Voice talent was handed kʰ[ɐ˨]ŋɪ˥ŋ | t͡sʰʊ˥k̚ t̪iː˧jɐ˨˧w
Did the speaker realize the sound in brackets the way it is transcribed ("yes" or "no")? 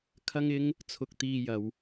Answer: no